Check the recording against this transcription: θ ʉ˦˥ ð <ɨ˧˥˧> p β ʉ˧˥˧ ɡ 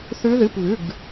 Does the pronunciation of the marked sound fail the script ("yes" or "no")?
no